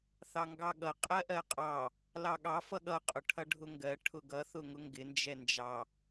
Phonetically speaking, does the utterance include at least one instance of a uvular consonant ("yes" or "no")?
yes